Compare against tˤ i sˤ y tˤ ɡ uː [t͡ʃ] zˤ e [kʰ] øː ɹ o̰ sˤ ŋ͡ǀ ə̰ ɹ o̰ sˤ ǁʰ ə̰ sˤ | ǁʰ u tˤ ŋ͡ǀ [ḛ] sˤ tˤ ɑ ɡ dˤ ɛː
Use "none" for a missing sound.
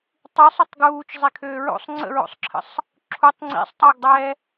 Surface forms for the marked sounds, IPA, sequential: t͡ʃ, kʰ, ḭ

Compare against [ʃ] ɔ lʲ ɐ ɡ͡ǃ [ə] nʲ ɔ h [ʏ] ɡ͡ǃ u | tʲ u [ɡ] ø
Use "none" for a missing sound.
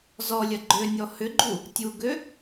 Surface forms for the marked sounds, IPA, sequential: z, ø, ʏ, ɡ

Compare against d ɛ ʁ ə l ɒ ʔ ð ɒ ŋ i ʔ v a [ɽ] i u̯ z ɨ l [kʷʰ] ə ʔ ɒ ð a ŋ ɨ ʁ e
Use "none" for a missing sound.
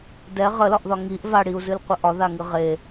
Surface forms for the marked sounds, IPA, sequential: ɽ, qʷ

